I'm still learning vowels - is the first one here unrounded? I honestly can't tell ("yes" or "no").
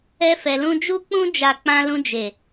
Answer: yes